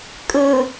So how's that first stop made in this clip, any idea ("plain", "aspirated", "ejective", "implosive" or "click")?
ejective